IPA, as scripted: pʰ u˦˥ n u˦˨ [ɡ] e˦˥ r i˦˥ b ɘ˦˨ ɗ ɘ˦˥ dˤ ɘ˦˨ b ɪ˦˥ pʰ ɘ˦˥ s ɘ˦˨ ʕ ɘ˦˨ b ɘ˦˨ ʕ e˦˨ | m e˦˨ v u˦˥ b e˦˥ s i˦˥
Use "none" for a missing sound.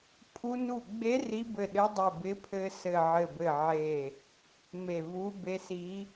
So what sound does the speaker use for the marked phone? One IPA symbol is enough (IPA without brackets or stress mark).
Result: ɡ͡b